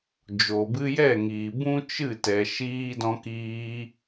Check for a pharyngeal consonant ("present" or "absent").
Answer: absent